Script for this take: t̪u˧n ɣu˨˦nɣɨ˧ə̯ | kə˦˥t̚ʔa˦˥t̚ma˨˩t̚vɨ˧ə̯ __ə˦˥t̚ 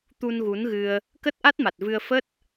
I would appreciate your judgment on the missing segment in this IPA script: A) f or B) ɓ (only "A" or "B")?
A